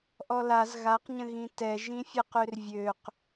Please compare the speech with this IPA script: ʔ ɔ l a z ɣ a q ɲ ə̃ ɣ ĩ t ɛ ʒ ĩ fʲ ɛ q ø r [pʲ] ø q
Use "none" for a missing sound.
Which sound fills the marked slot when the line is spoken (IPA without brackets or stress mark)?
vʲ